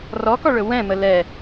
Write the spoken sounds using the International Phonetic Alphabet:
rɔkɔɭɵ wɛ̃mə lɛ

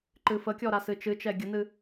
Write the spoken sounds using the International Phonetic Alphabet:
ǃɨfəkʲɔɾa sɨt͡ʃɨt͡ʃɛ ɡʲənɨ

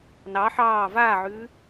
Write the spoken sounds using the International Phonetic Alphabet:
nɑ ħɑː vaːʕʉː

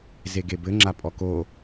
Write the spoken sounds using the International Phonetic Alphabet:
zeɡebɘ ŋ͡ǁapʼɔko

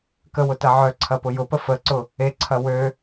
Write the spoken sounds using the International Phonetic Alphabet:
kəwʊtɐ ʕœǀʰɐpʊ jʊpə fəǀʊ | eǀʰɐ wø

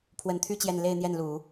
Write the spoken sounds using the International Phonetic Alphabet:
pʰwə˧˥nt̪ʰy˥˧ t͡ɕjɛ˥˧n le˥˧ɪ̯n̪jɛ˥˩nlu˨˩˦

